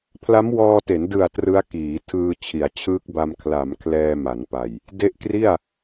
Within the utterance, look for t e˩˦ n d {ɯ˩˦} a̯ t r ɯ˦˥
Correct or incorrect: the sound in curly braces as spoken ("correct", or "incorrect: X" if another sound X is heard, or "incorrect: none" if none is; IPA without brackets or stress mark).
incorrect: ɯ˨˩